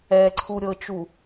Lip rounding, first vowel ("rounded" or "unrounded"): unrounded